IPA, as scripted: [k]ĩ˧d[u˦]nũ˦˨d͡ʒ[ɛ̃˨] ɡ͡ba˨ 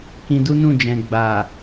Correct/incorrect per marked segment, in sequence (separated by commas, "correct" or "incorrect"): correct, correct, correct